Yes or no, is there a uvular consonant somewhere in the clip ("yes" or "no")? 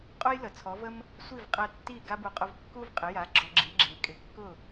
yes